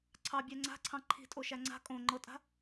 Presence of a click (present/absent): present